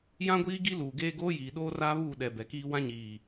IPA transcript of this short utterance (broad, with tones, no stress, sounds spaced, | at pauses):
j ã˦ ɡʷ iː˦ ɡ i˦ l uː˨ ɡ eː˦ ɡ oː˦ j iː˨ ɗ oː˦ r aː˦ β uː˦˨ ɗ ɛ˨ b ɛ˨ k iː˦ w ã˦ ɲ iː˨